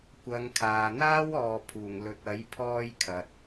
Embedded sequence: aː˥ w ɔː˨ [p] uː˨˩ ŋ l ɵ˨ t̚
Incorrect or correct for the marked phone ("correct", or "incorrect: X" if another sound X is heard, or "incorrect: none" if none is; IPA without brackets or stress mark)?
incorrect: pʰ